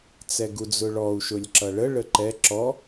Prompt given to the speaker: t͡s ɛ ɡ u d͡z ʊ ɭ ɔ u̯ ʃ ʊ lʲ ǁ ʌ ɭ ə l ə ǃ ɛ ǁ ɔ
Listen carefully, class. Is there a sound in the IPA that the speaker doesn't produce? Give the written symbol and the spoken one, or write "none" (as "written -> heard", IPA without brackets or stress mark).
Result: l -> ɭ